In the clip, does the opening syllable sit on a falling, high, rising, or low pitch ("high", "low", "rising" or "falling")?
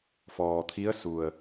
low